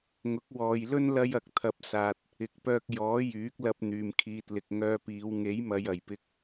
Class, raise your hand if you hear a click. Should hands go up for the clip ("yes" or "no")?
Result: no